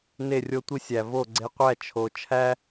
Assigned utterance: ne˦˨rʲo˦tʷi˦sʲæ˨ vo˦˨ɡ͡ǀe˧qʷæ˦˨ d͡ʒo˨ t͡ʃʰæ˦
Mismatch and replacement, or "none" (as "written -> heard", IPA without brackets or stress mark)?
d͡ʒ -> t͡ʃʰ